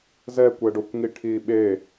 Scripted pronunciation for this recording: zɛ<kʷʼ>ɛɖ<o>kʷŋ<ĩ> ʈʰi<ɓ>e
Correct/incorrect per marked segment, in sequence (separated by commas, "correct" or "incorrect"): incorrect, correct, incorrect, correct